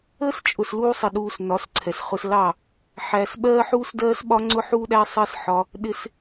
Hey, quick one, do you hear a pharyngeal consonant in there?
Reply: yes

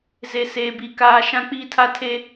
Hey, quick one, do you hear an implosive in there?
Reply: no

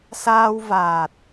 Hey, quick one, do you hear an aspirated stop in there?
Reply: no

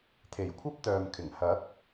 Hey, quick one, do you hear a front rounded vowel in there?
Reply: yes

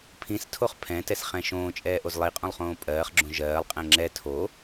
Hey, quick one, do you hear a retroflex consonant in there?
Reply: no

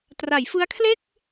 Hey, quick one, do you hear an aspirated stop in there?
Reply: yes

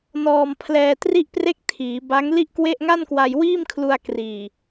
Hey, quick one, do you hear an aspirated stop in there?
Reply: yes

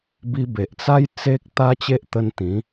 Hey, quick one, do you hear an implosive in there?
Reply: no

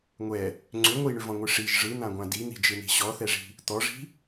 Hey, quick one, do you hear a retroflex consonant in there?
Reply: yes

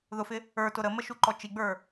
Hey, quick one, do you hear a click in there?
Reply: yes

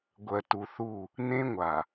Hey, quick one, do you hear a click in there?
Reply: no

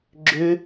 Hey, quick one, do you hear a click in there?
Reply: yes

